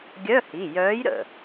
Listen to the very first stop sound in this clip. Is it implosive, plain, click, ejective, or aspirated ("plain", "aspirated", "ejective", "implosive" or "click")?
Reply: plain